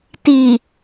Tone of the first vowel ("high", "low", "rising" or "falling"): low